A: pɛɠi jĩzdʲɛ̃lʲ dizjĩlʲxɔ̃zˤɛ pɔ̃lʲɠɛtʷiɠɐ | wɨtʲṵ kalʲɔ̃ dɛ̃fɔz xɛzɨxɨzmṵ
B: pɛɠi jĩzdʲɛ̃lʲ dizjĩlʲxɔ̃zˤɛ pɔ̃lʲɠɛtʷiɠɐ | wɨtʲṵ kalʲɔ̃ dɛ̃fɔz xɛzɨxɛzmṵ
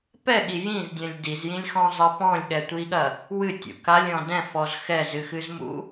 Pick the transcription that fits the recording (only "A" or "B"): A